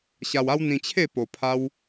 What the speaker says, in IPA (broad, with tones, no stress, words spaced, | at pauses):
ɕa˧wa˦w n̪ĩ˧t͡ɕʰe˥˧ po˧pʰa˦w